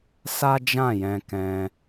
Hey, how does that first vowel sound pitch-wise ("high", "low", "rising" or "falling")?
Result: high